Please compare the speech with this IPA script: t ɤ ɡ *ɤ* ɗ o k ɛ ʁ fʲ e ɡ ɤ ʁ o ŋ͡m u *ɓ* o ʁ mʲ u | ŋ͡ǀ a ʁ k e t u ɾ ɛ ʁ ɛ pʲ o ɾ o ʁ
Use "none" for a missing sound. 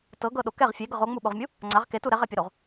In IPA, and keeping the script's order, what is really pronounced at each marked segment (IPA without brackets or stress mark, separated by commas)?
ɤ, ɓ